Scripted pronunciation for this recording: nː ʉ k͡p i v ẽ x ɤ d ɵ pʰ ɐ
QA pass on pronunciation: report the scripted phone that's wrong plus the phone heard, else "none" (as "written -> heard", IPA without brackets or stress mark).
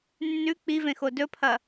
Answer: ɤ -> o